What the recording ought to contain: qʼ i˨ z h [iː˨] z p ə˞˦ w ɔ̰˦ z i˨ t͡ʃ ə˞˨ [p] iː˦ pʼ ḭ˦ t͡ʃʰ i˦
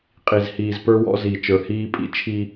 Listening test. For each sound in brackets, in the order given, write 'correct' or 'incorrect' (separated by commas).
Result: correct, incorrect